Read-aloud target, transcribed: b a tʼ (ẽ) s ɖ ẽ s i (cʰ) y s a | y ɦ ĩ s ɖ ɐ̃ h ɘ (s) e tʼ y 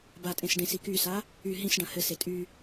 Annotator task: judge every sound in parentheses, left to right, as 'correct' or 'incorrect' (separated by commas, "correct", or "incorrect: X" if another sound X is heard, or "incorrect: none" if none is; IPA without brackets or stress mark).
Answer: correct, incorrect: k, correct